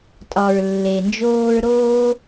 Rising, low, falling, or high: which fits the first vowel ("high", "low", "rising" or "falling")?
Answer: low